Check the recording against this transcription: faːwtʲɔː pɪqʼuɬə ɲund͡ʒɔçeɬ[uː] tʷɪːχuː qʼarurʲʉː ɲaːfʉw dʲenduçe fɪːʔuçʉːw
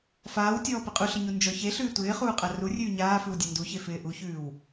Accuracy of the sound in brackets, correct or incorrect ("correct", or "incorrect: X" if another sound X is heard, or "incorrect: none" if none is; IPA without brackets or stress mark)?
incorrect: ʉː